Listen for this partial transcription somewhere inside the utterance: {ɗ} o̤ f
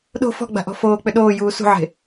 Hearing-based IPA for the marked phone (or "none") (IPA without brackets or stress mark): ɗ